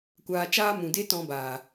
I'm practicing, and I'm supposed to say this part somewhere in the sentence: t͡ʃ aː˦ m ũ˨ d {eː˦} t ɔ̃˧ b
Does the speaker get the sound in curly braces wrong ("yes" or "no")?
yes